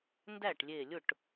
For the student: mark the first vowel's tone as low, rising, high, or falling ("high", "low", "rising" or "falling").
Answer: falling